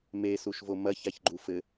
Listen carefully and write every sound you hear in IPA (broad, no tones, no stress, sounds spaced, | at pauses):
m e s u ʃ v o m ɐ ç a ç ɡ͡ǃ u f ɘ